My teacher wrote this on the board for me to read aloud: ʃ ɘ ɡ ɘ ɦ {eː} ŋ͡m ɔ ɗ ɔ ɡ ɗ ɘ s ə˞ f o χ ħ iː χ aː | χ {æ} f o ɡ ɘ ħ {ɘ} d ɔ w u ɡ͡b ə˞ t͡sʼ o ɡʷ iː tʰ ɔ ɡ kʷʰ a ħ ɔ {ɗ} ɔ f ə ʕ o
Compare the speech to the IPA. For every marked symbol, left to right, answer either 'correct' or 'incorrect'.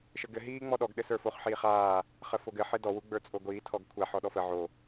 incorrect, incorrect, correct, correct

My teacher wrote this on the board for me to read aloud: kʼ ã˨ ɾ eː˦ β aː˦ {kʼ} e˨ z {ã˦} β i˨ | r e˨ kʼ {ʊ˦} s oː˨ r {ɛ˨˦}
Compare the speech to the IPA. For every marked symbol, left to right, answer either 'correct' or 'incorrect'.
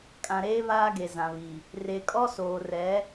incorrect, incorrect, incorrect, correct

